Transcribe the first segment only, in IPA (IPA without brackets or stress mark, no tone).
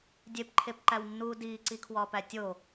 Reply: dʲ